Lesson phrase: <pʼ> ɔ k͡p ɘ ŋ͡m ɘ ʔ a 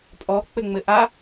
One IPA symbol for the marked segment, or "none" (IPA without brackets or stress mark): pʼ